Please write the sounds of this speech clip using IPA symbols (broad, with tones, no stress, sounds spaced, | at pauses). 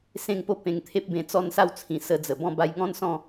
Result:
s ẽ˥˧ ŋ p o˥˧ p ẽ˧ ŋ t̪ʰ e˦ p̚ b ẽ˧ t͡s ɔ˥˧ n s a˥˧ w t͡sʰ ĩ˨˩ s ə˧ d͡z ə˨˩ b ɔ̃˥˧ b a˧ j ŋ ɔ̃˥˧ n s ɔ̃˥˧